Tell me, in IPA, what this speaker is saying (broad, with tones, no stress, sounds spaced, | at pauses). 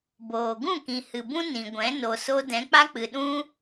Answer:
b oː˨ ɡ ũ˦˨ k ĩ˨ h ɨ˨ b ũ˦ n ĩ˨ ɡʷ ɛ̃˨˦ n o˨ s o˧ d ɛ̃˨˦ k͡p a˦ k͡p ɨ˨ ɗ ũ˦